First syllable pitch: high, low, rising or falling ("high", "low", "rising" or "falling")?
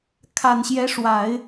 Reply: low